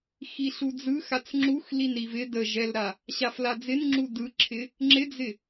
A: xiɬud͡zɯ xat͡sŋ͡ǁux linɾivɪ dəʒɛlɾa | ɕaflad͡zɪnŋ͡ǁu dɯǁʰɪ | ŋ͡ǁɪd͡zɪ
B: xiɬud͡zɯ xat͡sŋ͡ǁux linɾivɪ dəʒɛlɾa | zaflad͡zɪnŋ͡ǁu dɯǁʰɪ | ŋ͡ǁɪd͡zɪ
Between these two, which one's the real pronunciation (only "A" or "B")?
A